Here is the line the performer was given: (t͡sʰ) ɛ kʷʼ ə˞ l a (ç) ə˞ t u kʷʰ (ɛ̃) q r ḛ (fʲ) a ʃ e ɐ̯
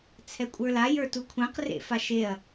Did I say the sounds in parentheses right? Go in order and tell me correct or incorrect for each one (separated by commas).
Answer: correct, incorrect, correct, incorrect